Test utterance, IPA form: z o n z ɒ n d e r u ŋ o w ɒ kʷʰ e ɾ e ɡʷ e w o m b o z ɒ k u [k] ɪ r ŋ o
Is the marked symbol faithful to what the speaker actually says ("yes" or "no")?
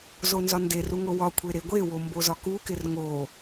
yes